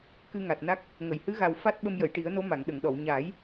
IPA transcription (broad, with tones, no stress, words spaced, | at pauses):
kɨ˧ŋa˨˩t̚na˦˥k̚ | ŋə˨˩˨jhɨ˧˥ɣa˨˩w fa˦˥t̚ ɓə˧mjə˨˩˨jʈi˨˩˦ə̯no˧˥ ma˨˩˨ŋɗə˨˩˨ŋɗɔ˨˩˨w ɲaː˨˩˦j